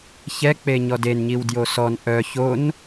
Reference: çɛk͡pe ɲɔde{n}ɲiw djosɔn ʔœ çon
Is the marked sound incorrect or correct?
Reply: correct